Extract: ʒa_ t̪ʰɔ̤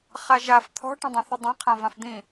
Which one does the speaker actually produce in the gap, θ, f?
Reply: f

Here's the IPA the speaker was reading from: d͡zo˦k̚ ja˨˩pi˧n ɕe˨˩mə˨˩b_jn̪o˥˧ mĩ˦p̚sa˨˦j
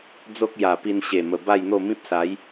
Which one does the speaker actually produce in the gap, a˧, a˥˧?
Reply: a˥˧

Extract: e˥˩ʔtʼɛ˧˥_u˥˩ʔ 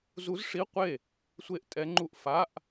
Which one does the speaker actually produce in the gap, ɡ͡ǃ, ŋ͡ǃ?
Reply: ŋ͡ǃ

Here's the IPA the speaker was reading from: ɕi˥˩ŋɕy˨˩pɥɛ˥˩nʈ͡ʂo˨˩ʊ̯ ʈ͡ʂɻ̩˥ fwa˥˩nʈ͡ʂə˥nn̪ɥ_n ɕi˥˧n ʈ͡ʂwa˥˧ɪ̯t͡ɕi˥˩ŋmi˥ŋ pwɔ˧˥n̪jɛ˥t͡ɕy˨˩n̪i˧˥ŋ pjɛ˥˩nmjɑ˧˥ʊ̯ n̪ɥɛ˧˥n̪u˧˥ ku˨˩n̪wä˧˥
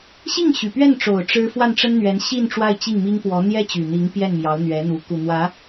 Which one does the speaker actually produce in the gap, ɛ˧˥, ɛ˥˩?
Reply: ɛ˧˥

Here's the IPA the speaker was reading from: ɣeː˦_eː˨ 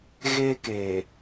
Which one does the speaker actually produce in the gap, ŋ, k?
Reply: k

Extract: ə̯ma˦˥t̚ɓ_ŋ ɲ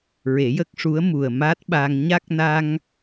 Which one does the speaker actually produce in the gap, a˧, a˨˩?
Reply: a˧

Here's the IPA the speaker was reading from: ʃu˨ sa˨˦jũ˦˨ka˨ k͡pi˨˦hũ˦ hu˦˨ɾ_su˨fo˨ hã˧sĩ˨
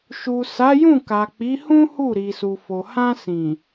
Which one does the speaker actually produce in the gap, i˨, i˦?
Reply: i˨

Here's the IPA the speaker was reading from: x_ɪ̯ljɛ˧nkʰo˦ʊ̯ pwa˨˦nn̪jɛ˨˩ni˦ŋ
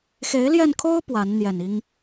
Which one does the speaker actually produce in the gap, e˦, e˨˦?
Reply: e˨˦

